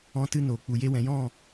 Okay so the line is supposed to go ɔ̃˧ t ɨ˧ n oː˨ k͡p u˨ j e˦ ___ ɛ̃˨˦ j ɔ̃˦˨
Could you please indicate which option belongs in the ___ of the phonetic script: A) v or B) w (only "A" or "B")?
B